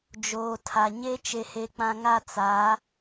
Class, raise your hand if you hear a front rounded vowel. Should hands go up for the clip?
no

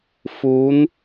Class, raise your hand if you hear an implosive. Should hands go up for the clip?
no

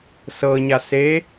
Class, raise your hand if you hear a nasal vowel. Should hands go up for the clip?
no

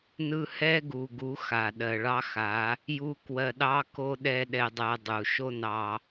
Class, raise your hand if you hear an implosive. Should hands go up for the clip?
yes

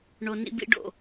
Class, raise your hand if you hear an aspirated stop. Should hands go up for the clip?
no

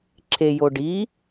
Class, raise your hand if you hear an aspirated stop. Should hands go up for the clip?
yes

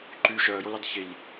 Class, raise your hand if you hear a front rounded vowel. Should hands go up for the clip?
yes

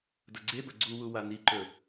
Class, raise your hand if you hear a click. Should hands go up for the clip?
yes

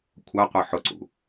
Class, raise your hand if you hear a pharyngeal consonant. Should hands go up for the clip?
yes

